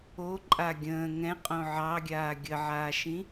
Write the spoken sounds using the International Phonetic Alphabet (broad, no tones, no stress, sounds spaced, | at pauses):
o ǃʼ a ɡʲ ə̃ː ŋ ɛ̃ qʼ õ ʕ ɑ ɡʲ aː ɡʲ ə ʕ aː ʃ ĩ